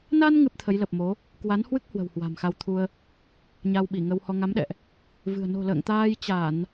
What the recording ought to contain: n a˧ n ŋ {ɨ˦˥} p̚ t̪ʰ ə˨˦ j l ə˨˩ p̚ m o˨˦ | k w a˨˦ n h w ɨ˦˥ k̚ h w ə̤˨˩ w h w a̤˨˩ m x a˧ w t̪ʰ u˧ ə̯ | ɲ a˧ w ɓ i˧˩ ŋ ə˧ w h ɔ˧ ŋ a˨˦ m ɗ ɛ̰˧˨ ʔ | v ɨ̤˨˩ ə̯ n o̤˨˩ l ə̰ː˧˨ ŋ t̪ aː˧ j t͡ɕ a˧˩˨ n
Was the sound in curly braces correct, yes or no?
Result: yes